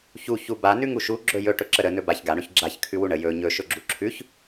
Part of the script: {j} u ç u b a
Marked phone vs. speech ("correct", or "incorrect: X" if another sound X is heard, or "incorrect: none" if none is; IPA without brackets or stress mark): incorrect: ç